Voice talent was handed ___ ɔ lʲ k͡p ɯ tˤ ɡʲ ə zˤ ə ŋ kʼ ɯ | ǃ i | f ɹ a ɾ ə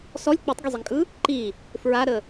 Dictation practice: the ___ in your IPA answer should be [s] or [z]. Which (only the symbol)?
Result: s